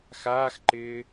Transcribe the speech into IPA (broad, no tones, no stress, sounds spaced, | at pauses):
x aː x ǃ ɪː